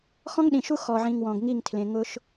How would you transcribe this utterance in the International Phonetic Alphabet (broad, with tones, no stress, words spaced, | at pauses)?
xɔ̃˦ŋɗĩ˨ʃu˦ xɔ˨ʕĩ˨ŋ wɔ̃˨ɡŋi˦˨ŋtʰlẽ˨ ŋʊ˦ʃ